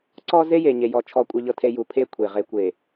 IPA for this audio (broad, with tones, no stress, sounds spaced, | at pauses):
ǀ ɔ˦ z e˦ j e˨ ɲ e˨ j ɔ˨ t͡ʃʰ ɔ˨ kʷʼ ɤ˨ ʎ ɤ˨ tʰ e˨ j u˨ pʰ e˦ kʷʰ e˨ ʁ e˨ kʷ e˨